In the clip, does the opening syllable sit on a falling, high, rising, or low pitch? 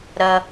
high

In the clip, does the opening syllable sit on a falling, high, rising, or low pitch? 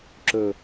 low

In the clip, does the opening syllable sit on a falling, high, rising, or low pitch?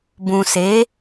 low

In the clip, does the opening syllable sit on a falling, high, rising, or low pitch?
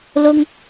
high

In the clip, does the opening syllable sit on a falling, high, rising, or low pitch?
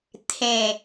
falling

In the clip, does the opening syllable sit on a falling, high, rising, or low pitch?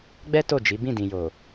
high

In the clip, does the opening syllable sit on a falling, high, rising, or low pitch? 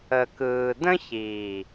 low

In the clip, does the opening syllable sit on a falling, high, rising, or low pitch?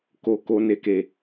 low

